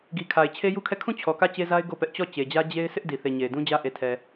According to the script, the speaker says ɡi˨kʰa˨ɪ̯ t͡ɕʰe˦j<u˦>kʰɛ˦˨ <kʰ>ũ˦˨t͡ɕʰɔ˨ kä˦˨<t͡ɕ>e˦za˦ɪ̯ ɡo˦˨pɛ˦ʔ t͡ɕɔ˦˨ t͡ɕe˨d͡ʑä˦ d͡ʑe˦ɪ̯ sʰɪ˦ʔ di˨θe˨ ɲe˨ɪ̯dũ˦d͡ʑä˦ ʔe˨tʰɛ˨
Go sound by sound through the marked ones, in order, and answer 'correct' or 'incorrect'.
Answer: correct, correct, correct

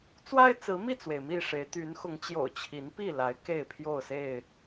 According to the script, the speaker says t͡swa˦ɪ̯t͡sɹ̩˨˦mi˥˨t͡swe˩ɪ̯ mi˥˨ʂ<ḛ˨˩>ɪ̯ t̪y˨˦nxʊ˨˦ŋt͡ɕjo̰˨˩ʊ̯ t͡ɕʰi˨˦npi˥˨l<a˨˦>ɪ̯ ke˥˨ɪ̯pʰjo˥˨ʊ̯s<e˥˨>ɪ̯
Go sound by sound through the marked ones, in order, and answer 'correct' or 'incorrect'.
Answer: incorrect: e˨˦, correct, correct

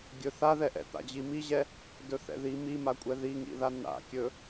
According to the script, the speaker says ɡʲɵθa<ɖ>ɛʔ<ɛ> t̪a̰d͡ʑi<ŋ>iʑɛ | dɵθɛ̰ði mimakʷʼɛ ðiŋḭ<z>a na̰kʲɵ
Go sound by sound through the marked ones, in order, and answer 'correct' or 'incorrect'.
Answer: incorrect: ð, incorrect: ɛ̰, incorrect: m, incorrect: ð

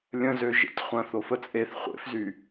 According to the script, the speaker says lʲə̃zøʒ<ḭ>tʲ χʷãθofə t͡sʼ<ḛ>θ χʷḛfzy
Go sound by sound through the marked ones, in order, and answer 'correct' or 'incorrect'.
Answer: incorrect: ḛ, incorrect: e

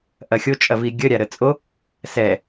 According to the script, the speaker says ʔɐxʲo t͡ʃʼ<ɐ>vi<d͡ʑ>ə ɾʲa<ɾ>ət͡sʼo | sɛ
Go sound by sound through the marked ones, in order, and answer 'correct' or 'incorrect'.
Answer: correct, incorrect: ɡʲ, correct

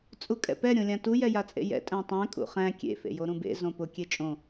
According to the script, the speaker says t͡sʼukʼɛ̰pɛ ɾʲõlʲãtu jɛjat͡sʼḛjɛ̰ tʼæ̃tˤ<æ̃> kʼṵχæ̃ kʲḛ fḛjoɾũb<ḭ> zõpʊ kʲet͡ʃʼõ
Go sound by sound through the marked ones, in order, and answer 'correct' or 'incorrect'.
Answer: correct, incorrect: ḛ

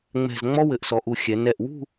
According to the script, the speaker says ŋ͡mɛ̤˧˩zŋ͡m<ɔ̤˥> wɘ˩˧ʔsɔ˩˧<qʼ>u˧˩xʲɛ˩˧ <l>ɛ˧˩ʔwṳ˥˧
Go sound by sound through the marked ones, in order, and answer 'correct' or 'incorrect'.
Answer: incorrect: ɔ˥, incorrect: ʔ, incorrect: n

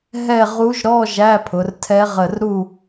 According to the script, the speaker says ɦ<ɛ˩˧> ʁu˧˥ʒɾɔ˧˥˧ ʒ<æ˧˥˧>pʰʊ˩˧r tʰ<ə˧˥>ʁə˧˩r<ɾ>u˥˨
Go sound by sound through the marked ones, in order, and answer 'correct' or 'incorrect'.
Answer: incorrect: ɛ˥˨, correct, incorrect: ɛ˧˥, correct

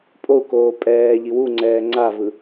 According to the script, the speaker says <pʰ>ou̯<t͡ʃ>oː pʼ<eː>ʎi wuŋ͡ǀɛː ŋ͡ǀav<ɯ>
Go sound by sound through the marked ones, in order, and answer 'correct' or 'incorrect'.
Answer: incorrect: pʼ, incorrect: k, incorrect: ɛː, correct

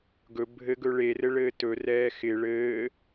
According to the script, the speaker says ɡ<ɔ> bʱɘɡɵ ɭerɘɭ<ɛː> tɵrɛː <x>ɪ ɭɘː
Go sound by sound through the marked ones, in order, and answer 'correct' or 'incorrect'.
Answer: incorrect: ɵ, incorrect: ɘː, correct

